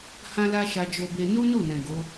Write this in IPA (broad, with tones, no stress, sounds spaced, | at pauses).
h ã˦ l a˦ ʃ a˧ d͡ʒ o˧ b e˧ n u˦ n u˦˨ n ɛ̃˨ ɡ o˨˦